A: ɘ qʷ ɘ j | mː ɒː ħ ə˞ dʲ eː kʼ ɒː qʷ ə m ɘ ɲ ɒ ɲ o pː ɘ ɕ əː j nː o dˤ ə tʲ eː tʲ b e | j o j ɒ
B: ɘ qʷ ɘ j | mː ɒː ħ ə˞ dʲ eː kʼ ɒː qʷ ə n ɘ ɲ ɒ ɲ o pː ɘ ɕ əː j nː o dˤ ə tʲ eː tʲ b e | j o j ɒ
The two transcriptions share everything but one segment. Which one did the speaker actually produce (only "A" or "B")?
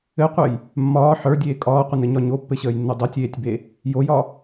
B